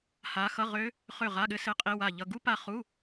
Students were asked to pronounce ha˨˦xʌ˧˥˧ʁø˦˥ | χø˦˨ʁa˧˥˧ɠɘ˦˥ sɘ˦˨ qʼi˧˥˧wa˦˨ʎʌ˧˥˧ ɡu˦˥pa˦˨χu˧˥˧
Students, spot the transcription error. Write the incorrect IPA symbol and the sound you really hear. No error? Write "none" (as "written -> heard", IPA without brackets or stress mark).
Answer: none